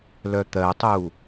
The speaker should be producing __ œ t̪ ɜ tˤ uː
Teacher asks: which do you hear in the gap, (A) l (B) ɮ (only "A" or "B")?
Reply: A